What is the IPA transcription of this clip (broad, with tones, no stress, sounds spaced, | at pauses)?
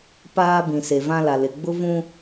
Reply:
p aː˦ b ĩ˨ s e˨ v ã˦ l a˨ l ɪ˨ ɡ͡b ʊ˦ v ũ˦